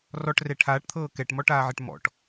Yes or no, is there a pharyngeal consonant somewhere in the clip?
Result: yes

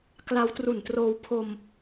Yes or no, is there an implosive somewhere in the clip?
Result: no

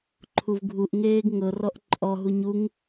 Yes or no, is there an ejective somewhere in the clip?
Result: yes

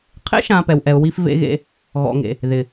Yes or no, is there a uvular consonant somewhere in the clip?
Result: yes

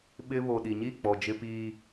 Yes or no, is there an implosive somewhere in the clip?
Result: yes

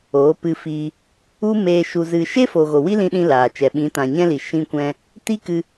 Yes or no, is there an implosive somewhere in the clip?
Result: yes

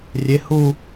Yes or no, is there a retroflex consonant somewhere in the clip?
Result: no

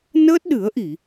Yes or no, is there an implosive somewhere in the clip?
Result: yes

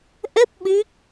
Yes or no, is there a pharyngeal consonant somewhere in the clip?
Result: no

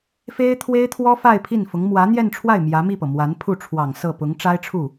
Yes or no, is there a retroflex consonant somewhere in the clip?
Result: yes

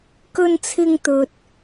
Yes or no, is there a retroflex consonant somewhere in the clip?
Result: no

